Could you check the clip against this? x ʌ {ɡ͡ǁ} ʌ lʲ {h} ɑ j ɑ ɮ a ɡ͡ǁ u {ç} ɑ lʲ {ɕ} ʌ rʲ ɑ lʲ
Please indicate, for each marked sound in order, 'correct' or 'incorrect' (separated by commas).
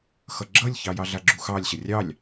correct, incorrect, incorrect, correct